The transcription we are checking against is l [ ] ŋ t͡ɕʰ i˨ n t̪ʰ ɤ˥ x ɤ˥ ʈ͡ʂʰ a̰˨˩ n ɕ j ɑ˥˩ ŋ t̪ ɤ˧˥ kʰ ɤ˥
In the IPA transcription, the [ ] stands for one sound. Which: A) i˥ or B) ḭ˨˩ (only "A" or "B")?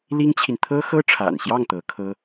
A